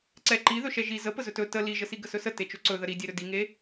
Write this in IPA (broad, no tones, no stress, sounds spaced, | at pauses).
ǀ ɛ ǃ i ð ɵ ʃ ɛ ʒ i z ə p ə z ɵ t ɵ t ə l i ʒ ə s i ɡ ə s ɵ s ə t e t͡ʃ ɵ ǀ ɵ ð ə ɾ i dʲ e ɾ ɵ d i ŋ e